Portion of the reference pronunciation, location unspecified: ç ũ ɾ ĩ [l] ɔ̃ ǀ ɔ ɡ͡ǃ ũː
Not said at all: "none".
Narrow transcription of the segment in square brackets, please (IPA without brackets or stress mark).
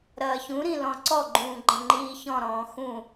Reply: l